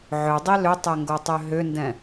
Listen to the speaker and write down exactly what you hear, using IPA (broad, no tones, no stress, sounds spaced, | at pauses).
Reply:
ʕ ʏ dˤ i l ʏ tˤ ɛ ŋ ɡ o tˤ ø ɦ ʏ n d ɛ̃